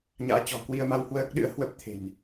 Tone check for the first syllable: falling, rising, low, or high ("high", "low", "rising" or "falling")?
rising